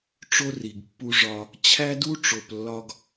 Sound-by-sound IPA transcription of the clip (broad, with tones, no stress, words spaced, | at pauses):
ʈ͡ʂo˦ri˨ɡpːu˦ʐɒ˦ | t͡ɕʰæ˦du˦ʈ͡ʂo˨p lːɒ˦ɡ